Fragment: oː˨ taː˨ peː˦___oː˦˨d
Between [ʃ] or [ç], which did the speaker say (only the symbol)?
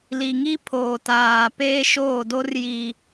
ʃ